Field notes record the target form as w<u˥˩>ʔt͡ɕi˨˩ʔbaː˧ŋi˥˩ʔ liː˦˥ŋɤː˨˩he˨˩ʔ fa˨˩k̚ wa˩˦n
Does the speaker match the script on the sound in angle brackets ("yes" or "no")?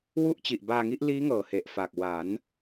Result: yes